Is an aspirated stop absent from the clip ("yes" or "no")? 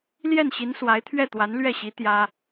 no